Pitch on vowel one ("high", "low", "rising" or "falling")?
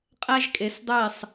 high